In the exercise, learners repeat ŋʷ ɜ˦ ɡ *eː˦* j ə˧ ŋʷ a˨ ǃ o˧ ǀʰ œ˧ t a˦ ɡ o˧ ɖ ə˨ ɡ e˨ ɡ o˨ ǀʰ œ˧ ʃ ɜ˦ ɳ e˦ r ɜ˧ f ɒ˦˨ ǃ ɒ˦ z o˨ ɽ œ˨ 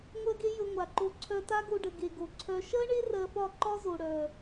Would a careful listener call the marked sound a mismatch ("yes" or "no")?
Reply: yes